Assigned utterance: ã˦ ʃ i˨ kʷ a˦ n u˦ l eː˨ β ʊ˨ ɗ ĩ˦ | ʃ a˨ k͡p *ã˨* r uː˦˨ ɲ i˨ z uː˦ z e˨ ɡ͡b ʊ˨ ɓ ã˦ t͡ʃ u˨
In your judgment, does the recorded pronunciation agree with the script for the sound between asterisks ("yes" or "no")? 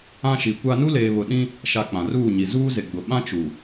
yes